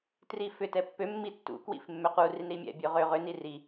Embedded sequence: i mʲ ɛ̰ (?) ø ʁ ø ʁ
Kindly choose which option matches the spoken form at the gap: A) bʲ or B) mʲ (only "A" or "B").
A